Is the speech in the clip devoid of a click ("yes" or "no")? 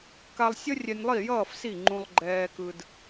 no